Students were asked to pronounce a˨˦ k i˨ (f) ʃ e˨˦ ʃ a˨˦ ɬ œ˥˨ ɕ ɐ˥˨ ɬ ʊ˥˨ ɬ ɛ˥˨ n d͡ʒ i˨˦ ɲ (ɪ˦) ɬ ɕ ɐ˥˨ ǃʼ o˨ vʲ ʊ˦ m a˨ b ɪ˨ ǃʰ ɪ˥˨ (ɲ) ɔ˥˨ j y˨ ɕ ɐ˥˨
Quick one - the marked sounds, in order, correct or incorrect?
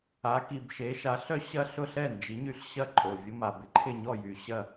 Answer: incorrect, incorrect, correct

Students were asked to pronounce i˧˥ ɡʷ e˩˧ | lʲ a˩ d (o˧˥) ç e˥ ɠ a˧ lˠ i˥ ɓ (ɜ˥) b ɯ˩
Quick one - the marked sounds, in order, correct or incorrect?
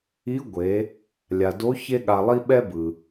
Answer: correct, incorrect

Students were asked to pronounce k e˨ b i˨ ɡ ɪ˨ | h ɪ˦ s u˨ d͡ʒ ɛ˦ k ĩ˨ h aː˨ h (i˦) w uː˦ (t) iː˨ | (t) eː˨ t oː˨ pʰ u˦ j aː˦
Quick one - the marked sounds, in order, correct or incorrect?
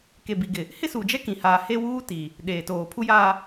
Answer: incorrect, correct, incorrect

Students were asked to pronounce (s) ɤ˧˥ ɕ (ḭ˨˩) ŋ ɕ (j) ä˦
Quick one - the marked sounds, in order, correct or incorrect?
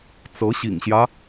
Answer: incorrect, correct, correct

